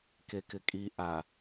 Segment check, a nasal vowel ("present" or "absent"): absent